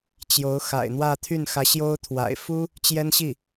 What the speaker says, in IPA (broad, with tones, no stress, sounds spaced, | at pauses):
t͡ɕ j o˧˥ ʊ̯ x a̰˨˩ ɪ̯ n̪ w ä˥˧ t̪ʰ y˥˩ n x ä˧˥ ɕ j o˥ ʊ̯ t̪ʰ w a̰˨˩ ɪ̯ f u˥ | t͡ɕ j ɛ˥ n ɕ i˥˩